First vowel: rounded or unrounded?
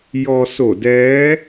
rounded